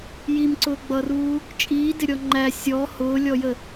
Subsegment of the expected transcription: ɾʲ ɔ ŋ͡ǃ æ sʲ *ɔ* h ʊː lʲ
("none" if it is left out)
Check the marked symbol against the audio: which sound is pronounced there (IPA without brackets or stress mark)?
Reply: ɔ